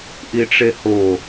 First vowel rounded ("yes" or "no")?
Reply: no